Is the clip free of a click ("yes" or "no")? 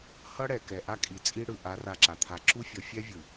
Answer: no